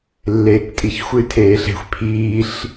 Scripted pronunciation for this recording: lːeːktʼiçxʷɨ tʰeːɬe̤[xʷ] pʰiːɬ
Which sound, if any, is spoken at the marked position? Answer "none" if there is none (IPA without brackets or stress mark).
xʷ